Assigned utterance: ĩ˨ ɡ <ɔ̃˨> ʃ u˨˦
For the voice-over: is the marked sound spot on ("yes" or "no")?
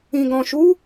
yes